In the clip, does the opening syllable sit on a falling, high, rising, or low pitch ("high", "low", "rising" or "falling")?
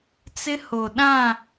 high